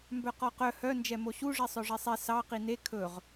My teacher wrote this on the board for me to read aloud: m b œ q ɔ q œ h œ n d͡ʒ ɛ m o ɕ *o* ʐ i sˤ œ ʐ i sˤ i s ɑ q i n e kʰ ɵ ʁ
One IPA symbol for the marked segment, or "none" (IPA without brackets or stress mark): u